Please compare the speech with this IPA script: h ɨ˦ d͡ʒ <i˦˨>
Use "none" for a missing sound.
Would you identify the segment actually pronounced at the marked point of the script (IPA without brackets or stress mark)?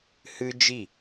i˦˨